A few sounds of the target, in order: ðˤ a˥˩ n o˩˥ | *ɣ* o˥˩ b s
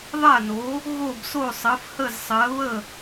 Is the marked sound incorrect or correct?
correct